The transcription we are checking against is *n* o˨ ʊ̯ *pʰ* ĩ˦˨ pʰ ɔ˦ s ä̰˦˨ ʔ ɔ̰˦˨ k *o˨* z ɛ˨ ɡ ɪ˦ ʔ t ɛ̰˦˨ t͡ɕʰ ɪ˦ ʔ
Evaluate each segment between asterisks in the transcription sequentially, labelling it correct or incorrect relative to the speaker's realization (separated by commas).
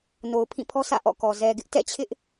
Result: correct, correct, incorrect